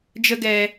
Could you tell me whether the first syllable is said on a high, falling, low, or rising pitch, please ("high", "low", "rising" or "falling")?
high